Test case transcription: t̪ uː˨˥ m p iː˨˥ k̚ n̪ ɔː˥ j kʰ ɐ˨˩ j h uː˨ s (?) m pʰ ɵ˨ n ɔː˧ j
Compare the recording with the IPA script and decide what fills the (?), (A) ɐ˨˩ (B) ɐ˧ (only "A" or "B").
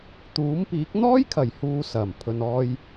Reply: A